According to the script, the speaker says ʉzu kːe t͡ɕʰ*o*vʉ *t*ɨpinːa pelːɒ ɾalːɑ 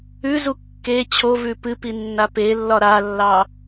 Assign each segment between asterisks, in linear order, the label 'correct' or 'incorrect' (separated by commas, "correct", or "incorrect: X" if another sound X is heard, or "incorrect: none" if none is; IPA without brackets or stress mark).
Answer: correct, incorrect: p